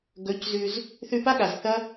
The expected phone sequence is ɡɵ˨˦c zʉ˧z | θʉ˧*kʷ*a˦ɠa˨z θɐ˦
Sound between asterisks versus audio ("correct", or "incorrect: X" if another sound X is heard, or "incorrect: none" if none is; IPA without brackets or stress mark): incorrect: p